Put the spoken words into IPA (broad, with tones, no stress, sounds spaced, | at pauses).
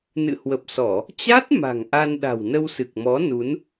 n ɨ̰˧˨ h w ə˨˩ p̚ s ɔ˧˩˨ | t͡ɕ a˦˥ t̚ m a̤˨˩ ŋ ʔ a˧ n ɗ a̤˨˩ w n ə˧ w s ɨ˨˩ k̚ m ɔ˨˦ n u˨˦ n